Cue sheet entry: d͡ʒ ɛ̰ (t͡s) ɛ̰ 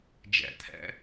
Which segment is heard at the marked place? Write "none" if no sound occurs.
t̪ʰ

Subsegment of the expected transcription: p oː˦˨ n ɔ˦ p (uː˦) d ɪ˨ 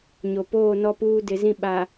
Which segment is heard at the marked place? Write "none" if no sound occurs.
uː˦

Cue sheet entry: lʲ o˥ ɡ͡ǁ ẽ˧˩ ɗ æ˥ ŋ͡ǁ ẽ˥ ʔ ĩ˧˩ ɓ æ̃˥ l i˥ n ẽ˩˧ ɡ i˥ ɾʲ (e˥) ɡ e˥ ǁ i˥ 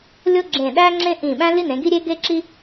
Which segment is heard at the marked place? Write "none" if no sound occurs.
e˥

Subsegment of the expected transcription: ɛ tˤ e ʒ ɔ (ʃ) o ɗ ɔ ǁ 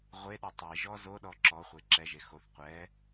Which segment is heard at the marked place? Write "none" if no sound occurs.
z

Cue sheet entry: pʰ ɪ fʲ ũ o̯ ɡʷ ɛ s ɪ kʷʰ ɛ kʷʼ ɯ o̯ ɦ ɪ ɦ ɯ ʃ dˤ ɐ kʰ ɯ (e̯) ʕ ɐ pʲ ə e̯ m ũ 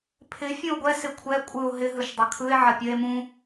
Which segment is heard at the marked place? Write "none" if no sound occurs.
e̯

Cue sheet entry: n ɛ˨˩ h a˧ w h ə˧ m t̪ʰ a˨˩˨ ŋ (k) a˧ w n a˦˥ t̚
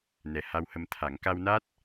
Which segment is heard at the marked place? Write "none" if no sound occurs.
k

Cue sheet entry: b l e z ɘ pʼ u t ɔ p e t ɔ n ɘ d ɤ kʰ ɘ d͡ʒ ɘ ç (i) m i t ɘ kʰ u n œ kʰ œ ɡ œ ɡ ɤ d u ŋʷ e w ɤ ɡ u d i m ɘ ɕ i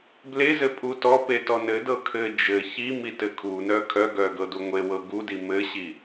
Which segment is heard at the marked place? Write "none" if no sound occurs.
i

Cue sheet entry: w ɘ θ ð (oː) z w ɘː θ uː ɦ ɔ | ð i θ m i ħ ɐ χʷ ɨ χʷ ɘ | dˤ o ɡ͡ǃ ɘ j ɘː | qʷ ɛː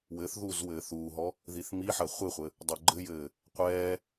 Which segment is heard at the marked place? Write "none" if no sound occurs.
uː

